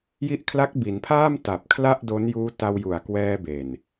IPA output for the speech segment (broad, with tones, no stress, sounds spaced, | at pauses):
j i˦˥ ʔ kʰ l a˦˥ k̚ b i˩˦ n pʰ aː˥˩ m t a˨˩ p̚ kʰ l a˥˩ ʔ d o˦˥ n j uː˦˥ t a˧ w j u˨˩ a̯ k w ɛː˧ b e˨˩ n